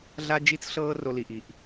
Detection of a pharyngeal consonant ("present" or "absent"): absent